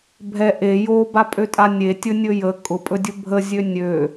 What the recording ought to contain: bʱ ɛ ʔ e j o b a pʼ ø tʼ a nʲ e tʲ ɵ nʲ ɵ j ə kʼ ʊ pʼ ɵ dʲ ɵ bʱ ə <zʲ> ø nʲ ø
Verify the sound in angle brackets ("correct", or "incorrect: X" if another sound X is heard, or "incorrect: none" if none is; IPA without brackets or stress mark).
correct